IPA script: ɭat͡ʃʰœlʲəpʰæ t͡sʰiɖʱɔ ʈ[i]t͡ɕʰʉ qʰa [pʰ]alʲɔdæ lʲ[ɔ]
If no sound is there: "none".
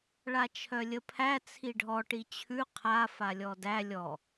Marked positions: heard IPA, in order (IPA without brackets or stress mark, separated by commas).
i, f, ɔ